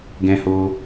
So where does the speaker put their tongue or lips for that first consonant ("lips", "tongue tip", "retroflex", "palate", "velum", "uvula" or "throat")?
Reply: velum